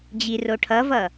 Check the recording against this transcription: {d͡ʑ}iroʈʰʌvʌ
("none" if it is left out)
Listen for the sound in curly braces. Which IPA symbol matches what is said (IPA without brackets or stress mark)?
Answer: d͡ʑ